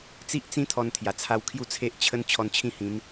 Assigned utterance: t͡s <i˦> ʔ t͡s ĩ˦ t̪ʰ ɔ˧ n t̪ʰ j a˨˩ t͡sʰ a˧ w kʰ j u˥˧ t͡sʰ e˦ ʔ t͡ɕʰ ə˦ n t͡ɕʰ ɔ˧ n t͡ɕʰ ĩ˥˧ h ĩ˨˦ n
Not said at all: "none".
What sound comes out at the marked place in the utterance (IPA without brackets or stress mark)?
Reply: i˦